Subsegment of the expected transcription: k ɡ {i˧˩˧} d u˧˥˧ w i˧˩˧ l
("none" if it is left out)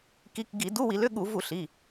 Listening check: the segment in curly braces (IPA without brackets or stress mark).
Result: i˧˩˧